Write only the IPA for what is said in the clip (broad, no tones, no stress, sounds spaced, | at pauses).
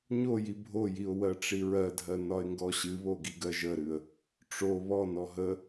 ɲ o j i bʱ o j i ʊ̯ w ɜ ʈ͡ʂ i ɹ ɜ dʱ ɜ n ɒ ɪ̯ ŋ ɡ ɔ ɕ ɨ β o ɡ i ɡ ɜ ʒ ə ɾ ɨ ə̯ | ʈ͡ʂ o β ɔ n ɔ ɦ ə